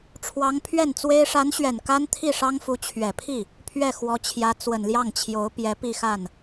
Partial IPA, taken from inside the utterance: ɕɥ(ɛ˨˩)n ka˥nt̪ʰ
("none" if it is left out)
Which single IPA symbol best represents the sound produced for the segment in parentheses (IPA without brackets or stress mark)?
ɛ˨˩